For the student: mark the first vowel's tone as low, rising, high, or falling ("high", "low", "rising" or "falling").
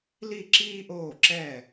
falling